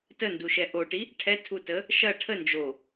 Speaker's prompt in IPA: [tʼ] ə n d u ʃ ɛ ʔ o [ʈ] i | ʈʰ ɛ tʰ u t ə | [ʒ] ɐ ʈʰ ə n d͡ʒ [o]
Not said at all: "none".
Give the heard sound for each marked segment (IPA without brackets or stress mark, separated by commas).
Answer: t, ʈ, ʃ, o